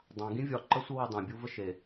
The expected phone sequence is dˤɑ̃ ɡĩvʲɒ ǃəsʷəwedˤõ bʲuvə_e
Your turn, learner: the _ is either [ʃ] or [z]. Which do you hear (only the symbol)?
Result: ʃ